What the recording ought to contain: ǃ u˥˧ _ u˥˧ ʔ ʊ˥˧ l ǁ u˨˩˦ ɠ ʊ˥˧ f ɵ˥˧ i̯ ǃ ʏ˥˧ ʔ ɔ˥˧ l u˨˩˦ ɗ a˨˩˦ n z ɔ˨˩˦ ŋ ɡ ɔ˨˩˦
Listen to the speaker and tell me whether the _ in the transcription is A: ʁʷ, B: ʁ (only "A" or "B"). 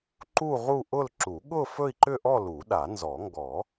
B